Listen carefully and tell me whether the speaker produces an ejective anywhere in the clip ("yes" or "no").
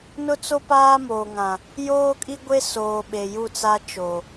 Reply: yes